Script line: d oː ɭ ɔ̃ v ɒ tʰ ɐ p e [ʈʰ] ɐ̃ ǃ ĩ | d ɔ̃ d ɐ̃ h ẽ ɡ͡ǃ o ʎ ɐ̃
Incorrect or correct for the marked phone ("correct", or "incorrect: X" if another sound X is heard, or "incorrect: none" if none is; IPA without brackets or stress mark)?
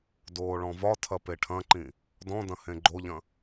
correct